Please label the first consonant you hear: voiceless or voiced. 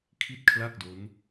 voiceless